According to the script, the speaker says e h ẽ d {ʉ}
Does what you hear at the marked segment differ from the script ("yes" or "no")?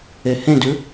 no